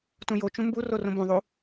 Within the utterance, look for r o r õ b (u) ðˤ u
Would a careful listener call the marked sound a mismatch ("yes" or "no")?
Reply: yes